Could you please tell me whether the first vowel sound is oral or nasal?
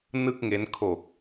oral